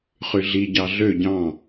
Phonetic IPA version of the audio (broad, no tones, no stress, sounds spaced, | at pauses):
χ y ɮ i ɟ ɑ ɮ ø ɟ ɑ̃